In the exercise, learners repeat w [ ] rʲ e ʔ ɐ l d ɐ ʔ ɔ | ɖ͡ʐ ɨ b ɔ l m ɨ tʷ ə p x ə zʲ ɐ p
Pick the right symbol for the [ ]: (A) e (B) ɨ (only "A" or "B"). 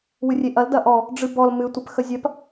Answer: B